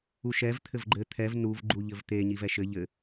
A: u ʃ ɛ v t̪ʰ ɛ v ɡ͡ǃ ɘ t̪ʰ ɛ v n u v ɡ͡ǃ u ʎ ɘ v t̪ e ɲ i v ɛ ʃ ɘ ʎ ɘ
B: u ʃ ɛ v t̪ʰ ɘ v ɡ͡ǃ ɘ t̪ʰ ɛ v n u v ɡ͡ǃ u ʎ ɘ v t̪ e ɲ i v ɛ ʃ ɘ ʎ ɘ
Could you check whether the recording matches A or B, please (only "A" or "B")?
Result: B